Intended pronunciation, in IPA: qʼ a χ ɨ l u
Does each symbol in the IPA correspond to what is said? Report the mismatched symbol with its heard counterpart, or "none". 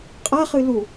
none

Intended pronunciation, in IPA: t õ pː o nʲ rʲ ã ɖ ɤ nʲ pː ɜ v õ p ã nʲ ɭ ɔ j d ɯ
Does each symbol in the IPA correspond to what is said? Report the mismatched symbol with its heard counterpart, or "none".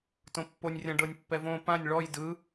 ɜ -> ɛ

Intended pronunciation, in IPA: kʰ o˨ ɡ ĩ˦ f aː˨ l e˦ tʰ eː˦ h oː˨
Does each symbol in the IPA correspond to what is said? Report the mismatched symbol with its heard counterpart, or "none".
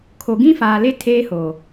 none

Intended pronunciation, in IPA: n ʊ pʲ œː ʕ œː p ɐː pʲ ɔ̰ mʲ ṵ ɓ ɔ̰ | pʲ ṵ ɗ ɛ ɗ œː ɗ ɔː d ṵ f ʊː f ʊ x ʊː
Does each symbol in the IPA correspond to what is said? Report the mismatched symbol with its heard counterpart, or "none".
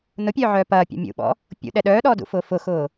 none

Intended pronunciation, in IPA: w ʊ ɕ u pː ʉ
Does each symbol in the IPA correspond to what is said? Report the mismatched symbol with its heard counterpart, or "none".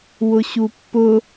ʉ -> ʊ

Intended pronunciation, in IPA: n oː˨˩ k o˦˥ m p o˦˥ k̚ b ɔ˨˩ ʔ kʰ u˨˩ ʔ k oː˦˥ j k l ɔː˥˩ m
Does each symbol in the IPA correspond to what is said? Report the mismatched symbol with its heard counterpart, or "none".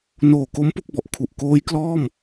none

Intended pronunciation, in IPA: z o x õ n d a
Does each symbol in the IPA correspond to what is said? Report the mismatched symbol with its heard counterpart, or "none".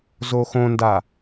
none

